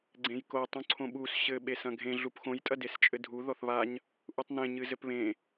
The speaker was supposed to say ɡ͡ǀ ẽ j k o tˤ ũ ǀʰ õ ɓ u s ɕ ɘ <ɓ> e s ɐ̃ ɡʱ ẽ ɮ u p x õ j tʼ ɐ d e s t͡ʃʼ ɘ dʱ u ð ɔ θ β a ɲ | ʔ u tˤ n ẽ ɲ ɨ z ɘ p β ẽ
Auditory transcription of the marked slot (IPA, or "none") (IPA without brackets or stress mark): ɓ